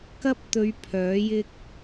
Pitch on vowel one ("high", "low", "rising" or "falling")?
high